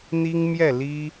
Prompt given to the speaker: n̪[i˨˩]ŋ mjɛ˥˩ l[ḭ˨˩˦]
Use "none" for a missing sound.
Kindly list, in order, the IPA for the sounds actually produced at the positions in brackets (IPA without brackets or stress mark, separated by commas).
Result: i˥, i˥